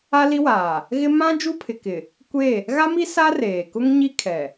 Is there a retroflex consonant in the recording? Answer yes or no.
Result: no